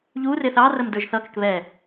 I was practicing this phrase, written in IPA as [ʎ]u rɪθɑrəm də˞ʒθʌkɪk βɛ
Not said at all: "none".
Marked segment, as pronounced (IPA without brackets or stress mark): ʎ